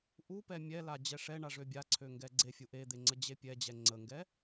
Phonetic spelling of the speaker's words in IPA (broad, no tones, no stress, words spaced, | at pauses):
ʔupɛ mʲɛla d͡ʑɛʂɛɳa ʐøbʲaǀʰø ŋɡɛɡ͡ǀefʲu ʔed̪e ŋ͡ǀəd͡ʑepʲɛd͡ʑɛ ŋ͡ǀəŋɡɛ